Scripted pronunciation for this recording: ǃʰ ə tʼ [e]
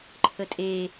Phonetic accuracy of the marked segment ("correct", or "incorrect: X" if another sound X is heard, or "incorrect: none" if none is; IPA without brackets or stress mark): correct